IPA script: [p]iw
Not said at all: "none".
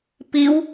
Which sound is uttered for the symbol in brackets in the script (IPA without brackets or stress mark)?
p